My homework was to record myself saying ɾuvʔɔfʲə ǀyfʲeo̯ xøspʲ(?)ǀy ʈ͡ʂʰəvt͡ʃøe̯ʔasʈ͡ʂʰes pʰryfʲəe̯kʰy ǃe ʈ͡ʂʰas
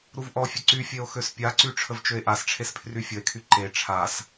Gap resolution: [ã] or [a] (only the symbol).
a